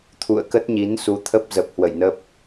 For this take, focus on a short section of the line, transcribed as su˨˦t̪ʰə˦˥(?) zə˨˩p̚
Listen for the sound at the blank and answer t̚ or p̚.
p̚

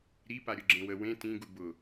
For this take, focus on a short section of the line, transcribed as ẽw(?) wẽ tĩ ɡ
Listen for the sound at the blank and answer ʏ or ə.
ə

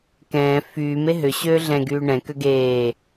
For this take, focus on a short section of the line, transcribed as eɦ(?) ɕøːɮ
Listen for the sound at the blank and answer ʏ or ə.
ʏ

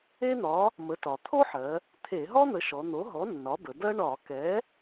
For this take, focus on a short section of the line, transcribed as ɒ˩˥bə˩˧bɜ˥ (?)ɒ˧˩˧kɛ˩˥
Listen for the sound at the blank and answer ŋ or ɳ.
ɳ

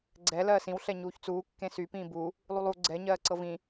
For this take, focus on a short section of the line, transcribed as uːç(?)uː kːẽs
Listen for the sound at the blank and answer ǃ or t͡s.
t͡s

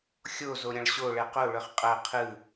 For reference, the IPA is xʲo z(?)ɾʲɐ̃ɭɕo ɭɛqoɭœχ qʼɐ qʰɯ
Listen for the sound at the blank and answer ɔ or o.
o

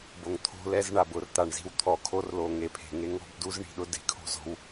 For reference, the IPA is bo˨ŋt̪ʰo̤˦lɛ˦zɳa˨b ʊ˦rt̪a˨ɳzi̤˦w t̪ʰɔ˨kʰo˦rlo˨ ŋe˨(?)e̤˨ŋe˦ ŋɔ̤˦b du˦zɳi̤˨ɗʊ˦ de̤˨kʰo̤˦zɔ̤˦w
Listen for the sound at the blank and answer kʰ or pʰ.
pʰ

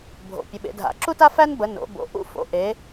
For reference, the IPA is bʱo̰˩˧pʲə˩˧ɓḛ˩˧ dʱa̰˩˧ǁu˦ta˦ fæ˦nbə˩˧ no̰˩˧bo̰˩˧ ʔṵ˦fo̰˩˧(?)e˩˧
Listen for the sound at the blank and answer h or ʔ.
ʔ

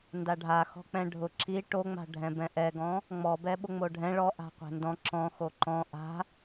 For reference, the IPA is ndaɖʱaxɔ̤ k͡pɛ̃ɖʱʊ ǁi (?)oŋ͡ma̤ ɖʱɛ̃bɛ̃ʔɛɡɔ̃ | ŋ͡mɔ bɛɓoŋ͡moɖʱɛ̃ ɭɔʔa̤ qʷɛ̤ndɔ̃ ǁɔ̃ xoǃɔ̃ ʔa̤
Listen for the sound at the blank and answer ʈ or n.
ʈ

